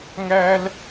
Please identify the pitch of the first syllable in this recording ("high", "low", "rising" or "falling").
high